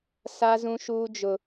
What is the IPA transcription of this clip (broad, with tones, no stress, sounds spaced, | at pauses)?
s a˦ z ũ˦ ʃ uː˦ d͡ʒ ʊ˦